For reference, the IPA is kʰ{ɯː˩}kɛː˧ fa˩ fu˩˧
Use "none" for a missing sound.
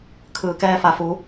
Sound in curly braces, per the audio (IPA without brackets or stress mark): ɯː˩